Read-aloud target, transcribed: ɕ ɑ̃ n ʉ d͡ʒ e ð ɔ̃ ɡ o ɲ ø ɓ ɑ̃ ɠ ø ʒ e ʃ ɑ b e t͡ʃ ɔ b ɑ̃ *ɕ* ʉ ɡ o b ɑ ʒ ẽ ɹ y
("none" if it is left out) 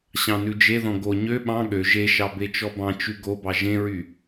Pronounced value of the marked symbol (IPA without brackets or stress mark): t͡ʃ